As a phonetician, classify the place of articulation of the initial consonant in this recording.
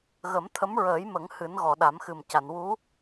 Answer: velar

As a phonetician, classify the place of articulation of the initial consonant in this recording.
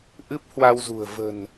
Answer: glottal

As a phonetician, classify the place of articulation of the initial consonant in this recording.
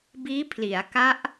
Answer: labial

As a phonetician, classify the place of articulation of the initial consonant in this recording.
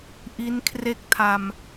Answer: glottal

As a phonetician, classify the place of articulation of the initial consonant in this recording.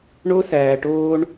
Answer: retroflex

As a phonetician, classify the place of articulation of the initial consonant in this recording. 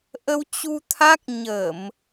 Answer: glottal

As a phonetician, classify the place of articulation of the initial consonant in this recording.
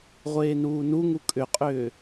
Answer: uvular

